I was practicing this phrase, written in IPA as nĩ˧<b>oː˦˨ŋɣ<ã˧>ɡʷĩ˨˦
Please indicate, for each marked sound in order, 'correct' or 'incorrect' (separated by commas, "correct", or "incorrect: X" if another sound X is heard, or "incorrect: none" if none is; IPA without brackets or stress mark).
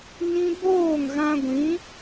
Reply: correct, correct